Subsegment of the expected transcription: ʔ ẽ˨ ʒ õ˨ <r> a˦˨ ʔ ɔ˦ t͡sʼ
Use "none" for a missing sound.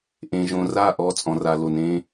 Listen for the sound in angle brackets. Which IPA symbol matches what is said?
r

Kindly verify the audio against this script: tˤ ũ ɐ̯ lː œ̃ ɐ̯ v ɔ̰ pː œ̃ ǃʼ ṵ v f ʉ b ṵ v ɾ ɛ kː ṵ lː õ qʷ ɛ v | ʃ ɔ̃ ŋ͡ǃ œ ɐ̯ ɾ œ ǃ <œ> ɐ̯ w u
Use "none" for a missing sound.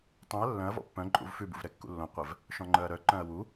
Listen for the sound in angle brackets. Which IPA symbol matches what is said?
œ̃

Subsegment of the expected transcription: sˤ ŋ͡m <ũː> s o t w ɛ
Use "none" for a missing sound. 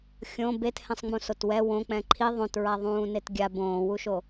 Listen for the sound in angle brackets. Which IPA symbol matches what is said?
ũ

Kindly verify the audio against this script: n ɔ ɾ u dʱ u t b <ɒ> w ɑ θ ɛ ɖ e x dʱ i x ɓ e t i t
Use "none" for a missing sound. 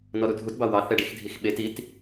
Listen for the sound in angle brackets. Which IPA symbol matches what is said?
ɑ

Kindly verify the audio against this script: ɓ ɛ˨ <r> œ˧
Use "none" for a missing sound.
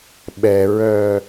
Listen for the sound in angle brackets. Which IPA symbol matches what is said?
ɹ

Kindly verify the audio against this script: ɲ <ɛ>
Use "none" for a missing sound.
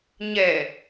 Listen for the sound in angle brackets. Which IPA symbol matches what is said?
ɛ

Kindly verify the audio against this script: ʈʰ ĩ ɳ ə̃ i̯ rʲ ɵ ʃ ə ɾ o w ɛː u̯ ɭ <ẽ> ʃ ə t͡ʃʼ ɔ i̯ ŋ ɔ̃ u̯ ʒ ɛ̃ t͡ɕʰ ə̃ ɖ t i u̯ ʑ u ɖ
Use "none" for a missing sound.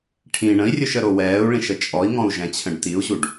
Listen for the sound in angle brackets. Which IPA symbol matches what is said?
ĩ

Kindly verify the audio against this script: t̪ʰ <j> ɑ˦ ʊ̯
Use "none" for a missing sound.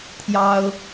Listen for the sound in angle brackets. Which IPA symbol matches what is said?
j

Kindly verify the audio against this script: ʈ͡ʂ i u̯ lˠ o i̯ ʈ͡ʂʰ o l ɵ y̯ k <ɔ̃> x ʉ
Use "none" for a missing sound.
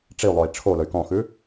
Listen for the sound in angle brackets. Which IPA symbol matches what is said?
ɔ̃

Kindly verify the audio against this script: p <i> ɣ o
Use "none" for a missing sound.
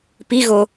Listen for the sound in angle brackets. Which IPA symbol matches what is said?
i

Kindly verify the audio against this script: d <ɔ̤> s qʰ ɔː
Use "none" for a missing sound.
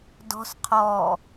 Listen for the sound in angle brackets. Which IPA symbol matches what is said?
ɔ̤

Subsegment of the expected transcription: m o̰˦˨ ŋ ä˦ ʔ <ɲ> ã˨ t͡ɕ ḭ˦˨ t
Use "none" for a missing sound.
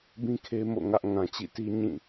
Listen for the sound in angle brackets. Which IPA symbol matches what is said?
ŋ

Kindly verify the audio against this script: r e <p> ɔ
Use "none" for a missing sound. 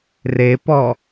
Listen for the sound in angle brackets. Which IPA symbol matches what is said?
p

